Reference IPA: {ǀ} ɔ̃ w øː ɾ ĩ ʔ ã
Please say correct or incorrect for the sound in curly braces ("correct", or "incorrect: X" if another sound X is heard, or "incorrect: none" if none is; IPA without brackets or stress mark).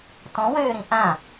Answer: incorrect: t